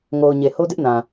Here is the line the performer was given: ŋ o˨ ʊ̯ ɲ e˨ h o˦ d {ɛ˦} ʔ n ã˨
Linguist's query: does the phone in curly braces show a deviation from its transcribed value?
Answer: yes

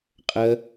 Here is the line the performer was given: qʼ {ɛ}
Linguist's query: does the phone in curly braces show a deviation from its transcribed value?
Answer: yes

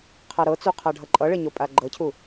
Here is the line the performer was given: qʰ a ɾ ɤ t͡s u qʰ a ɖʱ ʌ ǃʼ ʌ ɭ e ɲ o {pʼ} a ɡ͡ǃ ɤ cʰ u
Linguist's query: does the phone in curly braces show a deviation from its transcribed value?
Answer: no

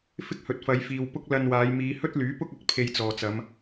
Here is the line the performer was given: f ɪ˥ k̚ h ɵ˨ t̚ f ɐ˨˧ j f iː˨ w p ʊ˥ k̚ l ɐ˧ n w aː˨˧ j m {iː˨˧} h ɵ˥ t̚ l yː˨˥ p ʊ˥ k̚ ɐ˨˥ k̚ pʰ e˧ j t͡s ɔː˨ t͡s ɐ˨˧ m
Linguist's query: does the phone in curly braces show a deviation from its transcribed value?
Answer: no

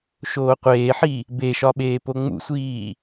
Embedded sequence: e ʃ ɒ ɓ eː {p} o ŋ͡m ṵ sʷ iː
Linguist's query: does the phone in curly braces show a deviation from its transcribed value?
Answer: no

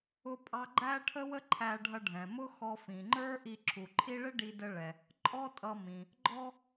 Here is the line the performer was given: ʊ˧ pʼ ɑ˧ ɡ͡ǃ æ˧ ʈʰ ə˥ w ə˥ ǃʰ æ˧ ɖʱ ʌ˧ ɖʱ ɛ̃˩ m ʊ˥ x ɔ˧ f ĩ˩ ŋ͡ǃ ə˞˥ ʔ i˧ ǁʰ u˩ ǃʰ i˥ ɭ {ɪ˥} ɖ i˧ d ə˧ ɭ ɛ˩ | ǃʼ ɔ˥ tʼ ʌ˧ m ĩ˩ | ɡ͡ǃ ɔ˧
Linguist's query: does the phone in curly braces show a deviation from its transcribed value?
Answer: no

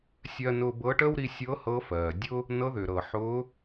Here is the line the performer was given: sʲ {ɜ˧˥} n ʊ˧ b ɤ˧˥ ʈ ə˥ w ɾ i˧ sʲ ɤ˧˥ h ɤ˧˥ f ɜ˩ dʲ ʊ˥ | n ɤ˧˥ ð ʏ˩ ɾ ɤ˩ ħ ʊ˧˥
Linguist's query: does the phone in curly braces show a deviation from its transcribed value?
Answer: yes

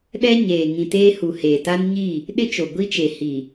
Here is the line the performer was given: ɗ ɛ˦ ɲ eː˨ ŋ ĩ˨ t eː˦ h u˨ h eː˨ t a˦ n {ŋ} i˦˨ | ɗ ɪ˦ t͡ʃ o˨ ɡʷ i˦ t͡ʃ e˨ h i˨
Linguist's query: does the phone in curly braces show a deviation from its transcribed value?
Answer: yes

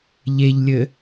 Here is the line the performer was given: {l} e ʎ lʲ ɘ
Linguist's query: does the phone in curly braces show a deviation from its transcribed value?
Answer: yes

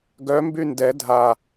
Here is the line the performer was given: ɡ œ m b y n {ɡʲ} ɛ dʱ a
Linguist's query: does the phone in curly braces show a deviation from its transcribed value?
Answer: yes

